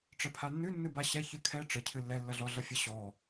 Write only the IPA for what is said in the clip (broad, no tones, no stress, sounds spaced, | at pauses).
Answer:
ʈ͡ʂ ə pʰ a nː ʉ nː ɨ b a ɕ ɛ ç ɨ kʰ ɛ ʈ͡ʂ ə cʰ ɨ lː ɛ lː ʌ ɮ ɔ ɮ ʌ fʲ ə ɕ ɔ